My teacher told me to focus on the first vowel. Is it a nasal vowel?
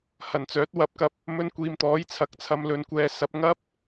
no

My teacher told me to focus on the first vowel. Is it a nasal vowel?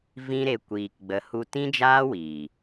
yes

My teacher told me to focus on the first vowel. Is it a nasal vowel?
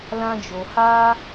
yes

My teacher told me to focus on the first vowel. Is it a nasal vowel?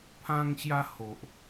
yes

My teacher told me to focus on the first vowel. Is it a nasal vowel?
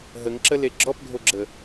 no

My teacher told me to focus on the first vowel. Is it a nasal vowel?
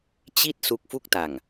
no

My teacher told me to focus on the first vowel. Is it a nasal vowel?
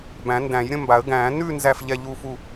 yes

